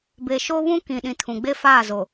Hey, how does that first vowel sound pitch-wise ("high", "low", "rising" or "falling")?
low